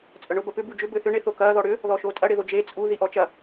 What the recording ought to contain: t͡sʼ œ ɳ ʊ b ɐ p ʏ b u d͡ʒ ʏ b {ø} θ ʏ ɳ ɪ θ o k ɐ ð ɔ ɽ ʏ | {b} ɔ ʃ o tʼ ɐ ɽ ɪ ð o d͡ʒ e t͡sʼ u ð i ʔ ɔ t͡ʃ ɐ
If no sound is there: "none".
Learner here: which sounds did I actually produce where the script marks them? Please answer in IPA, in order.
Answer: ø, ð

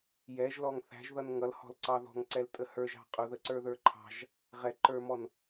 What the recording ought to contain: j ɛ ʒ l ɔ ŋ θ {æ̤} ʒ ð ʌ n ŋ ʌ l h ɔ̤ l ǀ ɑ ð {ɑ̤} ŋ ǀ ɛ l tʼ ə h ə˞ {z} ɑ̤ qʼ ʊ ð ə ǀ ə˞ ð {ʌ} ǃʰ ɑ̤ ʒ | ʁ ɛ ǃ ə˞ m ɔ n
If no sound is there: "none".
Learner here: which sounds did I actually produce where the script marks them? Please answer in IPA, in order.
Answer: æ̤, ɔ̤, ʒ, ə˞

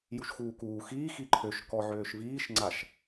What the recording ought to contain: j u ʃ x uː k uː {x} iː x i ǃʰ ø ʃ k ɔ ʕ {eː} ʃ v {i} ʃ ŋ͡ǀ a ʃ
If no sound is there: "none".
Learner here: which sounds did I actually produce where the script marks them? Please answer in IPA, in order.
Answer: x, øː, iː

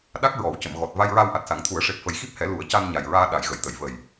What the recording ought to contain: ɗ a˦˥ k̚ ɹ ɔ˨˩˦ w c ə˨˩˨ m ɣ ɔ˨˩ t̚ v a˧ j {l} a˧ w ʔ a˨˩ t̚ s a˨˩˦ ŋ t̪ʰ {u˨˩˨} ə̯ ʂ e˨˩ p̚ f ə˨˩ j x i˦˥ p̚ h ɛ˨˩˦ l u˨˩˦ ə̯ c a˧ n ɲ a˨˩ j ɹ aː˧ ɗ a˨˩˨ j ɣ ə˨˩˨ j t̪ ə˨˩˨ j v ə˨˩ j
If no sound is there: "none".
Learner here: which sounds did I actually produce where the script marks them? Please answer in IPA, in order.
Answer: ɹ, u˨˩˦

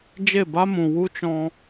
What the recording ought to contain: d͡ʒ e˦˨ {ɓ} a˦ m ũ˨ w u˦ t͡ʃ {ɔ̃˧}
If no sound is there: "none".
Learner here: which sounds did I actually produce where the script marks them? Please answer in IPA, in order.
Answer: b, ɔ̃˧

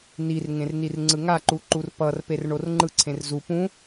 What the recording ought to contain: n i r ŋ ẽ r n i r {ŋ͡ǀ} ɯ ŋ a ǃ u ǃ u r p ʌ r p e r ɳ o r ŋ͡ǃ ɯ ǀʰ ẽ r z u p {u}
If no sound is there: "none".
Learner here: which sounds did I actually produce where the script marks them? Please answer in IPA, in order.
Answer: ŋ͡ǀ, ũ

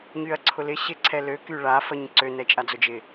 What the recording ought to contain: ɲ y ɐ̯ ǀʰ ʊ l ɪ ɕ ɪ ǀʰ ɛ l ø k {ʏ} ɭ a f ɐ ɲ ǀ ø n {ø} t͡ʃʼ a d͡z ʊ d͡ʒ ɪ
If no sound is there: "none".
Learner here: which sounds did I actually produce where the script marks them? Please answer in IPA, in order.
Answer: y, ɛ

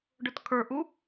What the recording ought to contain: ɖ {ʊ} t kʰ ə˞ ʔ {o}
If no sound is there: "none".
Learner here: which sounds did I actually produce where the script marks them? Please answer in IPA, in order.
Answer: ʊ, u

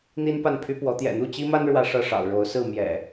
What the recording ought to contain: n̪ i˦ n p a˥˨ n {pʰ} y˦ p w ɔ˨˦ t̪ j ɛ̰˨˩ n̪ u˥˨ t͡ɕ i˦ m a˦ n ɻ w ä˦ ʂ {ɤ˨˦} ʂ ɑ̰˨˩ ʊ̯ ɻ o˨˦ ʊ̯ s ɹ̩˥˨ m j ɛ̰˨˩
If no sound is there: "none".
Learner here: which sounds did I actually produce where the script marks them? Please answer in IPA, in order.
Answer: pʰ, ɤ˥˨

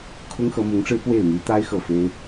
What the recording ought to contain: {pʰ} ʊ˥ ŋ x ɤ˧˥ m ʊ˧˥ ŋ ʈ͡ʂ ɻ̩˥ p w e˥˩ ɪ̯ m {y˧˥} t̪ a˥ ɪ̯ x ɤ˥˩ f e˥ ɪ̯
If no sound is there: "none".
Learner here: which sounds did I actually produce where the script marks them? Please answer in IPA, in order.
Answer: kʰ, y˧˥

